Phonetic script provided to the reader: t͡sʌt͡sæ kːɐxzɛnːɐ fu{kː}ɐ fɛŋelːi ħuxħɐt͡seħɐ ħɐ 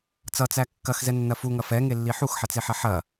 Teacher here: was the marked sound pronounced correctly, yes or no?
no